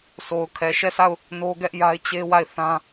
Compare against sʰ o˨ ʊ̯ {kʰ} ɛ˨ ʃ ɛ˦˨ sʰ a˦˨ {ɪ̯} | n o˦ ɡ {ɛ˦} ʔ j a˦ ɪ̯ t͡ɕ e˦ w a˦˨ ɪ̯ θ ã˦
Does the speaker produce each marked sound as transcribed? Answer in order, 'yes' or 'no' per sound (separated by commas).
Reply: yes, no, yes